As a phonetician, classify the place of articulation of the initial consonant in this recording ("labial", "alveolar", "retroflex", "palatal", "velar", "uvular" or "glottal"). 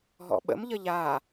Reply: glottal